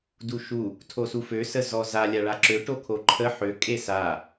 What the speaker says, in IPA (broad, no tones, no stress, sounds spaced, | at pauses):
d u ʃ u | tʰ o s u f ø s ə z ɔ z a lʲ a ɭ a ǁ ø ʈ o kʰ o ǃʰ ə ħ ø kʼ e s a